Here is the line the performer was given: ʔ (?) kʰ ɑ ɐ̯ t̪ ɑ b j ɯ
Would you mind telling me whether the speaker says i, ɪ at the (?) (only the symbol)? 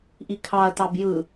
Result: i